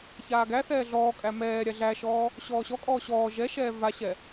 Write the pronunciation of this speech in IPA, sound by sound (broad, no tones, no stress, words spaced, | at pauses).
çaːɡæθɛː ɮɔːkʼæ mɛːɾʲa ɮæʃɔː | ɕɔːɕɔkʼɔː ɕɔː ʒɛʃɛː vaɕɛ